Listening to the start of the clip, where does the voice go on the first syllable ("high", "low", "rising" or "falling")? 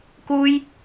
high